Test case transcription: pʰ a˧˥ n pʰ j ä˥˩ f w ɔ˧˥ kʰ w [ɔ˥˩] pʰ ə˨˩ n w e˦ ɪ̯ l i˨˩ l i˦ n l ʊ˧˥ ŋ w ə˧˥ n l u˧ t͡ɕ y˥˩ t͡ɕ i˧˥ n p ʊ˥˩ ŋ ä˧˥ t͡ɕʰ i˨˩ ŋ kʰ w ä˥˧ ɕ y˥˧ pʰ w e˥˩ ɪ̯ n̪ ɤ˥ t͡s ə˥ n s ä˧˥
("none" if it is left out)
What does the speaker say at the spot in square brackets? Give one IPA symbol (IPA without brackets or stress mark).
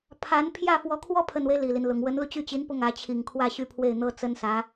ɔ˥